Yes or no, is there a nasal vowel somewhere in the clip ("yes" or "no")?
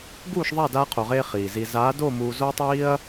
no